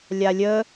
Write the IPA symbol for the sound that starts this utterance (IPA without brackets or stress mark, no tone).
lʲ